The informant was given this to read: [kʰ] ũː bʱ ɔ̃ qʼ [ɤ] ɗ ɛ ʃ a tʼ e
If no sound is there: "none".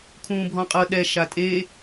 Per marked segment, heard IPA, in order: kʰ, ɤ

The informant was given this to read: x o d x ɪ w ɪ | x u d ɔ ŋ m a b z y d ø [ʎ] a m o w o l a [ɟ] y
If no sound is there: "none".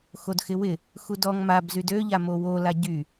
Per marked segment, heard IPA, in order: ʎ, ɟ

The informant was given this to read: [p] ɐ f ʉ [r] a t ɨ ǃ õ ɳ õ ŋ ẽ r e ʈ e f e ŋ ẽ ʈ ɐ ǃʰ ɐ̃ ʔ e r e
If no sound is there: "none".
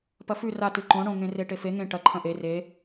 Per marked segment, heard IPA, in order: p, r

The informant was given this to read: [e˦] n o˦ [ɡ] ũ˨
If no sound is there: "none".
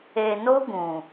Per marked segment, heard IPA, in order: e˨, ɡ

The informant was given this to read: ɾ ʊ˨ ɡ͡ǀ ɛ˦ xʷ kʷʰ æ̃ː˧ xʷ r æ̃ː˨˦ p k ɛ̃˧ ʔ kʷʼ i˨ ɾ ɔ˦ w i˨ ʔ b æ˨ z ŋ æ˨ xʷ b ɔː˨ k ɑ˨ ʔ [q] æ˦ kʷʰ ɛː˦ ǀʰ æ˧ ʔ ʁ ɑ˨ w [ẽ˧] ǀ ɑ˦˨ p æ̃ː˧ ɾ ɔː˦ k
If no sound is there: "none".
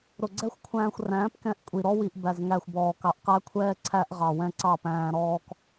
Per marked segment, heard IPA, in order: q, ɛ̃˧

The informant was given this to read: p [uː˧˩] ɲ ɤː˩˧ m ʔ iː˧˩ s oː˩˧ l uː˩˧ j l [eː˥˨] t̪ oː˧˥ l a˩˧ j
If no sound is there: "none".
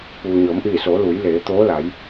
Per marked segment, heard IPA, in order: uː˩, eː˩˧

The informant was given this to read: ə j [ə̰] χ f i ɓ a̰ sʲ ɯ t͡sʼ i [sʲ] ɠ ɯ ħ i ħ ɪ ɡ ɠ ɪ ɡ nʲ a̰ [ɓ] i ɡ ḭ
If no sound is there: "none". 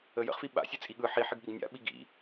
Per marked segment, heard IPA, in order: ə̰, none, ɓ

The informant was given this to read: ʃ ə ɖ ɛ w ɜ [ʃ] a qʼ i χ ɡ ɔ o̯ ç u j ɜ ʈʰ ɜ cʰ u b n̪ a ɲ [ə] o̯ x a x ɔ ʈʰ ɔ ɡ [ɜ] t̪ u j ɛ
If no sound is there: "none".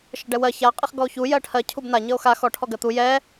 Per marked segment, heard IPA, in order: ç, ə, ɜ

